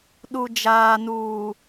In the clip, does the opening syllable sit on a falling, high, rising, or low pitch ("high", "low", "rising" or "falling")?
low